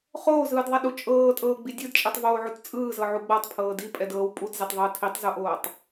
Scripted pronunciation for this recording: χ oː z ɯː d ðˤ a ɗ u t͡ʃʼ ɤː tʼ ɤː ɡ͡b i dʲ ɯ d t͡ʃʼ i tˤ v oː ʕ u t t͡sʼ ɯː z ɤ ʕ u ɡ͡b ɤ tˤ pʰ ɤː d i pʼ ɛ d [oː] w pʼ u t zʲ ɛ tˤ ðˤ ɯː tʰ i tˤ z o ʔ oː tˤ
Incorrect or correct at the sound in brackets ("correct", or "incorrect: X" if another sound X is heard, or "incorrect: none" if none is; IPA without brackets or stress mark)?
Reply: incorrect: ɤː